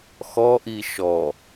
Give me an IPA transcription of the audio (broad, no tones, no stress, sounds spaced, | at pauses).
x ɔ ʔ i ʃ ɔ